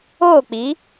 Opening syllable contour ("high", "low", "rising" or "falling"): falling